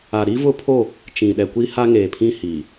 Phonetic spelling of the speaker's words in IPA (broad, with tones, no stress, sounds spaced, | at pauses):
a˨ ɾ i˦ v ʊ˦ pʰ o˦˨ | t͡ʃ ĩ˨ ɗ ɛ˨ kʷ i˦ h a˦ ŋ e˨ pʰ ĩ˦ h i˨